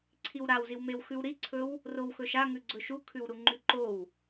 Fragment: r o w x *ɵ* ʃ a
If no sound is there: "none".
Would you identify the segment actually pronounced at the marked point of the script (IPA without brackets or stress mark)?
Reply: ɵ